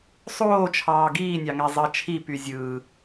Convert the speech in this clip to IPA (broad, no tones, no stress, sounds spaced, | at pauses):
sˤ oː t͡ʃʰ ɑː ɡ iː nʲ ɑ ŋ æ zˤ ɑ t͡ʃʰ i p y zʲ ɯː